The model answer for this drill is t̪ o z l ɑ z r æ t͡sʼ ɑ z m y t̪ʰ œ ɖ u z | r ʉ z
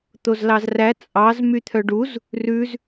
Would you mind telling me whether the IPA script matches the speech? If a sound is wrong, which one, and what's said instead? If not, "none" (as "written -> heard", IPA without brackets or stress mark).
none